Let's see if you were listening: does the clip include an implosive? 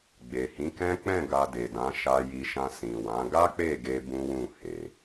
no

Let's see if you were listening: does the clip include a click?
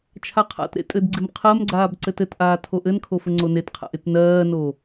yes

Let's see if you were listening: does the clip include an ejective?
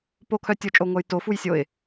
yes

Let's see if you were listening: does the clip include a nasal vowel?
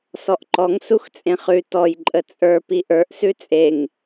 yes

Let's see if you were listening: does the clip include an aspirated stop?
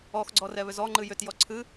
yes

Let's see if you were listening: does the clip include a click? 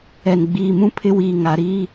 no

